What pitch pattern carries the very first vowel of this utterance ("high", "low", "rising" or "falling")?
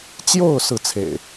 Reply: falling